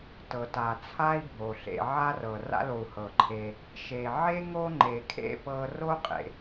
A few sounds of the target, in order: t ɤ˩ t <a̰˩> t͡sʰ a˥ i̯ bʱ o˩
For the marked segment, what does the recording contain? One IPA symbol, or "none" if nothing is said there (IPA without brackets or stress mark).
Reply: a˩